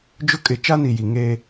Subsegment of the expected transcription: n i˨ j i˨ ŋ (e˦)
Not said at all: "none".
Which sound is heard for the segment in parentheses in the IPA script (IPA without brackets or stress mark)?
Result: e˦